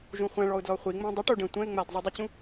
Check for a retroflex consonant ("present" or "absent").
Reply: present